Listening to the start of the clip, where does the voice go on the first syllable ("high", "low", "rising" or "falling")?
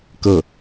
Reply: falling